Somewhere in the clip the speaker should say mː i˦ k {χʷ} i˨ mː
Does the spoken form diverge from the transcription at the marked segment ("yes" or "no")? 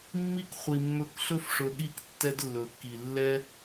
no